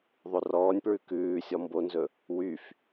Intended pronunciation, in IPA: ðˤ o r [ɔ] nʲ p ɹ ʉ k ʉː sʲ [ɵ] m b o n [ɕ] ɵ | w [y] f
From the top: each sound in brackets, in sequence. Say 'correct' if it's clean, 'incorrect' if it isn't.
incorrect, incorrect, incorrect, correct

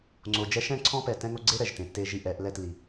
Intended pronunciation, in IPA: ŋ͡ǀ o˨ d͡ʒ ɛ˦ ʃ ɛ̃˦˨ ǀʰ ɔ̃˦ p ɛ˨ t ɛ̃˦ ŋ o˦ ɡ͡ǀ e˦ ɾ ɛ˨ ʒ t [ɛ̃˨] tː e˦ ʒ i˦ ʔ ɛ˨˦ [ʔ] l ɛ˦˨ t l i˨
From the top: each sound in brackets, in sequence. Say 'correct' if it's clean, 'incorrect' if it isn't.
incorrect, correct

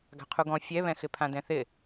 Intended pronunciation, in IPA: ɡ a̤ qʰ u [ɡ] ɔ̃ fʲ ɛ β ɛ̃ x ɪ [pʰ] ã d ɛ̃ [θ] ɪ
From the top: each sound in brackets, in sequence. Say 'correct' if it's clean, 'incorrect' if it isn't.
correct, correct, correct

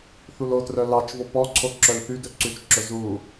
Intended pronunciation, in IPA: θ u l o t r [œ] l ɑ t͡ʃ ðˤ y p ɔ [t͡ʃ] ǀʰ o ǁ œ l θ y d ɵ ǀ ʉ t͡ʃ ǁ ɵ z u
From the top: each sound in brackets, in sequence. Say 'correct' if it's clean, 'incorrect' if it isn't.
correct, incorrect

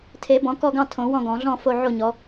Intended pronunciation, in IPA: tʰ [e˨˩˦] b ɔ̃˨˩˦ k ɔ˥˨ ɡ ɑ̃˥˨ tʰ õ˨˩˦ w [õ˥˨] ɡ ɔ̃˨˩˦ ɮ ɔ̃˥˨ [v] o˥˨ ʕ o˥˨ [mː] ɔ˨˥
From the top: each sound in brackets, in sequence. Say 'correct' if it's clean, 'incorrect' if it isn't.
correct, incorrect, incorrect, incorrect

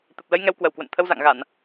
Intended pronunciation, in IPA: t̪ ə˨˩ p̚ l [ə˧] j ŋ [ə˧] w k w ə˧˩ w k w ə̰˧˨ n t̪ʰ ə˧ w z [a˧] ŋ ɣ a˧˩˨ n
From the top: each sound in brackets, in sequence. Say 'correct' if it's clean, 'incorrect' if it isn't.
correct, incorrect, incorrect

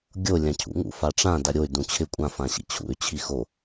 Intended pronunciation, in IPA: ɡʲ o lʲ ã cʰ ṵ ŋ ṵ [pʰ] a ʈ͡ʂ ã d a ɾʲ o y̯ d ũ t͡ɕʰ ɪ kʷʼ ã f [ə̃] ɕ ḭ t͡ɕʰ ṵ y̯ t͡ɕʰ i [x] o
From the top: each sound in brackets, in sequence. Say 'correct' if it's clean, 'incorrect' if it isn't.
incorrect, incorrect, correct

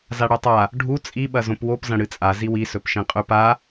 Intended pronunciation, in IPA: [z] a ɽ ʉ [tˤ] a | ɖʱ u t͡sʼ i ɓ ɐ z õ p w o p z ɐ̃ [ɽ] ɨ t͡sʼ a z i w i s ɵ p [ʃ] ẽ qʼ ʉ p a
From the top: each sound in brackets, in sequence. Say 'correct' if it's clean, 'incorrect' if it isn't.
correct, correct, correct, correct

